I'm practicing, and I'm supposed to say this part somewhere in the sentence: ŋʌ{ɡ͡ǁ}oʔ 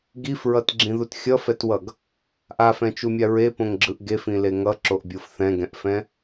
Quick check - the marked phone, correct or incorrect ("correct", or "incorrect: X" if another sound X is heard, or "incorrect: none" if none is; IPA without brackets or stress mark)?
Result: incorrect: ǁ